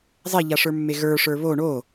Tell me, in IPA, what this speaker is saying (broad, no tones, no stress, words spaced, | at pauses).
zˤeʎaʂə˞mːe ɣə˞ʂə˞ βo ɳo